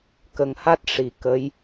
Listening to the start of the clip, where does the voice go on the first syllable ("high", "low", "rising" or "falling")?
low